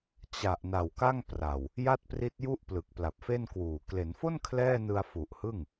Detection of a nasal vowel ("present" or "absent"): absent